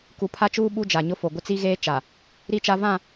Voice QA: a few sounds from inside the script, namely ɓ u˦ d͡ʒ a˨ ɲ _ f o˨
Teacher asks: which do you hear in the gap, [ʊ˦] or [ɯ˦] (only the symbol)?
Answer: ʊ˦